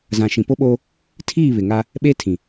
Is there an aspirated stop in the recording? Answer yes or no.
yes